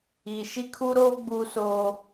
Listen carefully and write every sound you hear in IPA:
i˨ ʃ i˦ kʰ u˦ ɾ oː˦ ɡ͡b uː˦ s oː˦

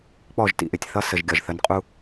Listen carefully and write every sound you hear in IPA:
k͡p ɔ˦˨ ʒ t ḭ˨ ʔ ɪ˨ tʲ θ ʌ˦ s ə˨ ʒ ɡʲ ɒ˨ ʒ θ ə˨˦ n qʼ u˦

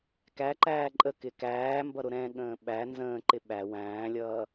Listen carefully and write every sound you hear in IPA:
k æ ǃ æː ǃʼ ə k ɪ k æː m b ʌ ɾ ʊ ɾ ɛ̃ ɠ ə̃ː ɓ æ n z ə̃ː ǃ ɪ ɓ æ w æ̃ː lʲ ʌː

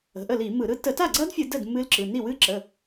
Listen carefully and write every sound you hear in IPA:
ə̤˩˧˩ ʔ ə˥˩ l i˧˩˧ m ɯ˧˩˧ ɾ ɯ˦˥ t ə˧˩˧ t a˥˩ ɡ͡ǀ ɐ˦˥ d fʲ ɨ˧˩˧ d ə˥˩ d m ɨ˦˥ l ǁ ɯ˩˧˩ n i˥˩ w ɨ˦˥ ǁ ə˩˧˩

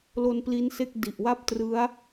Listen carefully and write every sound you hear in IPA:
l o˧ n p l i˦˥ n s e˥˩ k̚ d i˨˩ ʔ w a˥˩ p̚ t r ɯ˦˥ a̯

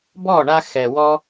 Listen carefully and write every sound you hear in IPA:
b ɔ˦˨ ɳ a˧ x ɛ˨ w ɔ˦

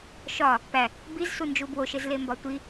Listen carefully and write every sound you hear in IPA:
ʃ ɒ | p æ | b i z s u n d͡ʒ u b w o ʃ e z l e m b ɒ tʷ i

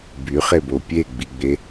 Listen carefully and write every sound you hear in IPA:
b y χ e b o pʲ e ɡ͡b i ɡ͡b e

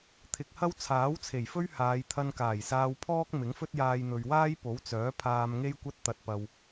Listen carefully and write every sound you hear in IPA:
t̪ʰ ɪ˨ k̚ h ɐ˥ w t͡sʰ aː˨˥ w t͡sʰ e˨˩ j f ɵ˥ ɥ h aː˨˧ j t̪ʰ ɐ˧ n k aː˨˩ j s aː˧ w pʰ ɔː˥ k̚ m ɪ˨˥ ŋ f ɵ˥ t̚ j aː˧ j n̪ ɵ˨ ɥ w aː˥ j p o˨˥ w t͡s œː˨˥ pʰ aː˧ m ŋ e˥ j kʷ ɐ˥ t̚ t̪ ɐ˧ t̚ p ɐ˧ w

